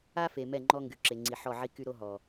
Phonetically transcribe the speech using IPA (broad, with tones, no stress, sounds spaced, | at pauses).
a˦ f e˨ m ɛ˦˨ ŋ͡ǃ ɔ˦ ŋ ɡ y˨ ǁ e˨ ŋ͡ǀ i˨ ħ ɔ˦˨ ʕ i˦ k y˦ ɾ o˦ ɦ ɔ˨